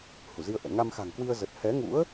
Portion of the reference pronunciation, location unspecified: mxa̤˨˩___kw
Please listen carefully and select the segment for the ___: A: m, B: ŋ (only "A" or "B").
B